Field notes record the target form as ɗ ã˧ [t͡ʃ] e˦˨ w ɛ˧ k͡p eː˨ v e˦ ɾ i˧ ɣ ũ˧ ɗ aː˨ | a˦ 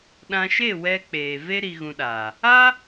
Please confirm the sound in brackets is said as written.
no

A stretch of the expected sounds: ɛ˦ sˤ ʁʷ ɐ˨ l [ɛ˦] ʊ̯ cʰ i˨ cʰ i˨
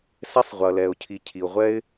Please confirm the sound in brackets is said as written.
no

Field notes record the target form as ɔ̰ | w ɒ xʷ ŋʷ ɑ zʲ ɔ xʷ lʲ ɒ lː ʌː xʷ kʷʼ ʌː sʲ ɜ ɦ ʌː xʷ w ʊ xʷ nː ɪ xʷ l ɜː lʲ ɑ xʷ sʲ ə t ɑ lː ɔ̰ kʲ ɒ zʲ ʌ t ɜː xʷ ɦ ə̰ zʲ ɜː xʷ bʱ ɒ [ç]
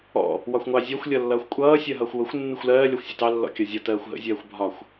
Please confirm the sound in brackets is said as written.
no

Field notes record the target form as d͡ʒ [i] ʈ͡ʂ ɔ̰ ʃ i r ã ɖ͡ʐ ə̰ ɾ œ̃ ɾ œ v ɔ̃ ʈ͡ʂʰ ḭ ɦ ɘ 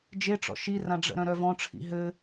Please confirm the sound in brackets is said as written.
no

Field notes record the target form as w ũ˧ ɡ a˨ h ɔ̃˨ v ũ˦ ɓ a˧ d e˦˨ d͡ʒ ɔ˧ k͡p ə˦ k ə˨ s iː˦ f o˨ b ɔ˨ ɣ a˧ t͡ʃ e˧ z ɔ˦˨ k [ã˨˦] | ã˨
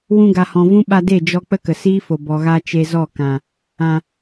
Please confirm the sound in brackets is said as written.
no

